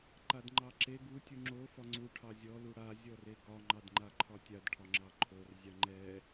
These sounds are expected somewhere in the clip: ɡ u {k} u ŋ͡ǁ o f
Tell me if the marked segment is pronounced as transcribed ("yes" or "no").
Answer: no